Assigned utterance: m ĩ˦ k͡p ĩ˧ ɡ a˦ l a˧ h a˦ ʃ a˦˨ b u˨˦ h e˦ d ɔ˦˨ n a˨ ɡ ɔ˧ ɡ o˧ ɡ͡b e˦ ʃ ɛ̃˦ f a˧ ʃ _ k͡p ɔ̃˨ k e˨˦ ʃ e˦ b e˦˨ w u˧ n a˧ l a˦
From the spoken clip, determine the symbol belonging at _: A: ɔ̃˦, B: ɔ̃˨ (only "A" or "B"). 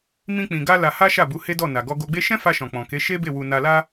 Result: B